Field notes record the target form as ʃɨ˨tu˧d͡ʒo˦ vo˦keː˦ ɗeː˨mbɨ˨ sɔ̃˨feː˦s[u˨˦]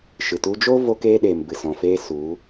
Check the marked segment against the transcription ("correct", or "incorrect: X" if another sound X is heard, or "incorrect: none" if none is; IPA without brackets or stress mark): correct